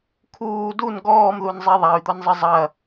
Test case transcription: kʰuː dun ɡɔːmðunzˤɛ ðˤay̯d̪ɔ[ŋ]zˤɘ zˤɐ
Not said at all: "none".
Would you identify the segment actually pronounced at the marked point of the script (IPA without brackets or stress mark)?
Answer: n